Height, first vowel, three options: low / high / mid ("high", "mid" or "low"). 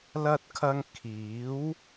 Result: low